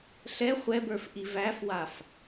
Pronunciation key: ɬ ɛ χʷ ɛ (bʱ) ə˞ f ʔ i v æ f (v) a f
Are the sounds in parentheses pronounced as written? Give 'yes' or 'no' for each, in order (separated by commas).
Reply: no, no